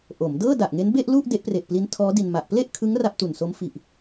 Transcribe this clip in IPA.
ʔ o˩˦ m d ɤː˥˩ d a˨˩ ʔ ŋ e˦˥ n b e˥˩ ʔ l u˥˩ ʔ d e˦˥ ʔ p r e˨˩ ʔ p l i˦˥ n tʰ ɔː˦˥ d i˧ n m a˨˩ ʔ p l e˥˩ ʔ kʰ ɯ˦˥ ŋ r a˥˩ p̚ t u˨˩ n s o˦˥ m f i˨˩ ʔ

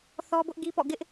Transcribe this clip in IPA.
θ ɔ˦ b ʊ˦ ʔ ɡ i˦ p ɔ̰˦˨ ɡ ɪ˦ ʔ

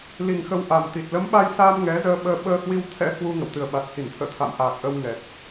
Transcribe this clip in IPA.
l i˨˩ ŋ x ə˧ w ʔ a˨˩ m t̪ i˨˩ t̚ l ə˨˦ m ɓ a˧ j s aː˧ m ŋ ɛ˨˦ z əː˧ ɓ əː˧ ɓ əː˧ h w i˧ w t̪ʰ ɛ̰˧˥ h w u˧ ŋ ə̰˧˨ w t̪ ɨ˨˩ ə̯ ɓ a˨˩ t̚ h i˧˩ n t̪ʰ ə̰ː˧˨ t̪ʰ a̰˧˨ m ʔ aː˨˩ k̚ ʔ ə˧ w ŋ ɛ˨˩ t̚

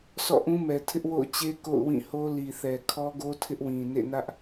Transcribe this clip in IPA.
sʰ ɔ̰˦˨ ʔ ũ˦ m ɛ˨ tʰ ɪ˦ ʔ w o̰˦˨ ʊ̯ t͡ɕ e˦ k o̰˦˨ ʊ̯ w ĩ˦˨ h o˦ l i˨ θ ɛ˨ kʰ ɔ˦ ɡ o˦ tʰ ɪ˦ ʔ w ĩ˨ n ḛ˦˨ n ä˦ ʔ

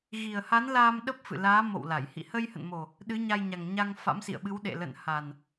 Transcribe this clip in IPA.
ɣ i˨˩ ə̯ h a˨˦ n l aː˧ m ɗ ə˦˥ p̚ f ɨ̰˧˨ l aː˨˦ m o̰˧˨ w l a˧˩ j h ḭ˧˨ h ə˧ j h ə̰˧˨ n m o˨˩ | ɗ ɨ˨˦ ɲ a˧ j ɲ a˨˩ ŋ ɲ a˧ ŋ f a̰˧˥ m s ḭ˧˨ ə̯ ɓ ɨ˨˦ w ɗ ḛ˧˨ l ə̰˧˨ n h a˨˩ n

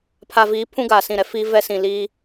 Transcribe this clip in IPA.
pʰ a˨ v iː˨˦ pʰ ũ˦ ɡ aː˨ s ĩ˦˨ ɾ ɛ˦ f i˦ v ɛ˦ s ĩ˨ l iː˦

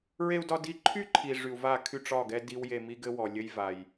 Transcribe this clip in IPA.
ɹ e˧ u̯ d ɒ˧ d i˧ ǃʰ y˦ ǃʰ i˨ ʐ y˨ u̯ v a˦˨ kʰ y˧ ʈ͡ʂ ɒ˦˨ ɡ ɛ˦ d i˦ w j e˧ m i˦ ɡ ɘ˦ w ɔ˨ lʲ ɘ˦ j v a˨ j

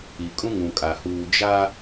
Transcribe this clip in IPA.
i˨ kʼ ũ˦ ŋ ũ˨ kʼ a˨ h uː˨ d͡ʒ a˦

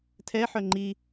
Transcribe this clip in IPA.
tʰ ɛ ħ œ ŋ͡ǃ i

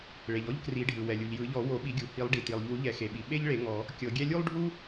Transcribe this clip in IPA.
ɭ e˩ ʎ ɔ˥ ʎ k r i˨˩˦ ɖʱ ɯ˩ w ɛ˩ lʲ u˩ ʎ j ɯ˨˩˦ ʎ ɔ˨˩˦ w o˨˩˦ ɓ i˨˩˦ ɡʲ u˩ h i˨˩˦ lˠ ɖ i˩ t i˩ lˠ ʎ u˨˩˦ ʎ ɛ˨˩˦ x e˩ ɓ i˩ ɓ e˥ ʎ ɭ e˨˩˦ ŋ ɔ˨˩˦ | kʲ ɤ˨˩˦ ɡʲ ɛ˥ lʲ u˥ lˠ ɖʱ u˥

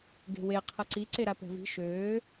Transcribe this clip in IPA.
ɡ e̤ w e qʰ ə ǀ i ǀ e ɾ a p ɛ̤ v i̤ ʃ øː

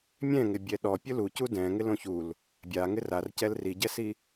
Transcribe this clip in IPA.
mʲ ɛ̃ ŋ ɪ bʲ ɛ ɗ ɔ pʲ ʊ l u c u d ɛ̃ ŋ ɪ l õ ç u l | bʲ a ŋ ɪ r a r c ɛ l r i ɟ ɛ s i

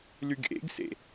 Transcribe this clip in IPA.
l y ɡ ʔ ḛ ɡ s ḛ

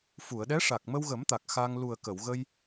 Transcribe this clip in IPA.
f u˨˩˨ ə̯ ɗ ɛ˧˥ ʂ a˨˩ k̚ m ə˧ w ɣ ə˨˩˦ m t̪ a˨˩ k̚ x a˧ ŋ l u˨˩ ə̯ k ə˨˩˨ w ɣ ə˧ j

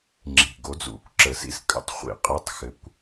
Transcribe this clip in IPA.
ŋ͡ǁ i̤˨˩ ɡ o˨˥ d͡z ṵ˨˩ kʷ ǁ ə˨˩˦ s ḭ˥˧ s kʼ ə̰˧˥˧ tˤ χʷ ḭ˧ qʼ ɘ˧˥˧ tˤ x ɘ˨˥ kʷ

